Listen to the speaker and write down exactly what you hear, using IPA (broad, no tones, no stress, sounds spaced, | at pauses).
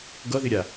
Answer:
ɡ ʌ ð ɪ ɾʲ a